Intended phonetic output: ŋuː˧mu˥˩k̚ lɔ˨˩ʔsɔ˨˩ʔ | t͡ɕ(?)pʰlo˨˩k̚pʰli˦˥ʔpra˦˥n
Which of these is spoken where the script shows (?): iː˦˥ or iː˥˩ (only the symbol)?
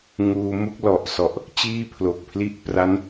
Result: iː˥˩